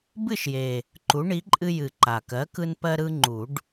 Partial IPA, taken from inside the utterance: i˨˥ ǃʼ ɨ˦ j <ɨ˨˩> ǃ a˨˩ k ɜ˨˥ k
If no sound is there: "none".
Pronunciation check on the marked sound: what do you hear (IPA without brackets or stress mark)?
ɨ˨˩